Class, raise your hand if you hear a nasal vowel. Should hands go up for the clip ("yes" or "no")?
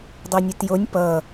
no